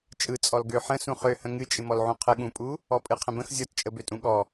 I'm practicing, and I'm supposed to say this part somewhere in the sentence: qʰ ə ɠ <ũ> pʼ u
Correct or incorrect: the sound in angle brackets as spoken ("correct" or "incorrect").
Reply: correct